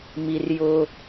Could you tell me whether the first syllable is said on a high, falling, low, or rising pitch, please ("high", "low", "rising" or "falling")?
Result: high